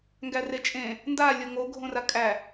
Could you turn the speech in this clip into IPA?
ŋɡæret͡ʃʼẽ | nda lʲoŋoɡʱõra kʼæ

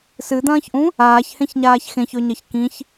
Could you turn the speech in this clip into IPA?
sɨd̪ɐ̃ːçʔũ | aːçhẽçɲaːç xẽçɵɲɐç kĩç

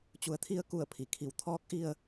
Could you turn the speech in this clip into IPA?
t͡ɕu˩˧ə̯t̪ʰi˧ə̯ku˧˩ə̯ pʰi˩kʰi˩˧w t̪ʰɔː˧˥k̚ʔi˧ə̯

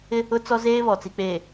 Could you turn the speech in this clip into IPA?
ɪ˦ | ʊ˦t͡sɔ˦ zeː˦βɔ˨t͡si˨k͡peː˨

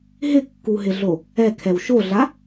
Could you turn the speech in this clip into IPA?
ɦɪkːuɦɪɮo | ɛkʰɛw ʃoɮa

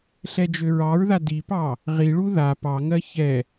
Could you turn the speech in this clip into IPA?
ɬɛd͡ʒøɹɑɹða dipɑ | ʁiɭu ða pɑŋɜ çɛ

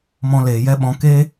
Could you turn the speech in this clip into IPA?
mɔ̃˧leː˨jɛ˦ɓɔ̃˧ ke˦

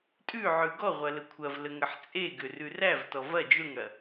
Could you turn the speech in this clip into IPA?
tʼʉʕʉ ɡɔʁʷɐ ləkʷʰɐvlə ŋəħt͡sʼeɡʏ rʉrævtɔ vɐ d͡ʒʏŋɽɐ

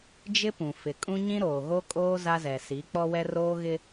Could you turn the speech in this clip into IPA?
d͡ʒɪ˦pũ˨ fɪ˨kʼũ˦ ɲĩ˦ɾoː˨ɣo˦kʼoː˦ za˦zɛ˨ si˨˦k͡pɔ˦wɛ˦ roː˦ɣɪ˦

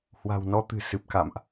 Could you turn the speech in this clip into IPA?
hwa̤˨˩wnɔ˨˦t̪ɨ̤˨˩ sɨ˨˩p̚ka̰˧˨mʔ

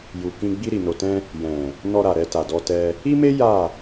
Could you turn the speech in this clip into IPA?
ju˨kĩ˧ ɡ͡bi˧ɾi˨no˨tɛ̃˧ | jɛ̃˨ | nɔ˧ɾa˨ ɾɛ˧ta˨dɔ˧tɛ˧ | i˦me˦ ja˦˨

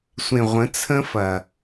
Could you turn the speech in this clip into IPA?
sʷẽ˨ʁʷə̃˨˦ t͡sʰə̃˦fɐ˨

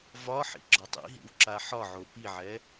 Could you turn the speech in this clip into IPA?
vɒħḭ ɡ͡ǁɒtˤḭɦḭw ǁaħɒʕo piʕɛ

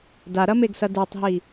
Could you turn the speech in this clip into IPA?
daɾɐmeɡsɐ dɛtˤɦi

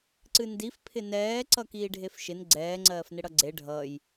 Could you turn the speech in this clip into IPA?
ǀɨndif pʰɪnɛː ǀʌkiːɖʱefʃɪn ɡ͡ǀɛː ŋ͡ǀɜːfnɪɽʌɡ͡ǀe ɖʱʌj

